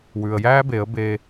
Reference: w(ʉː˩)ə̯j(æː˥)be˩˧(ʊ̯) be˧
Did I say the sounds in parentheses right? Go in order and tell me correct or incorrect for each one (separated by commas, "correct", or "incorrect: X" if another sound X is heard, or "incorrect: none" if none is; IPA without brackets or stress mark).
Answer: correct, correct, incorrect: ə̯